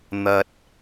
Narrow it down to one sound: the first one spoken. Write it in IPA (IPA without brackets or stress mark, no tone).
n̪